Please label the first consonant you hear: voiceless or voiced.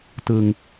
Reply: voiceless